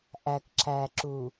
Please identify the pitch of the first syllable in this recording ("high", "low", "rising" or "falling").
low